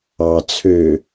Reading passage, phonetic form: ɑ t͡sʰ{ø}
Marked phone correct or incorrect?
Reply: correct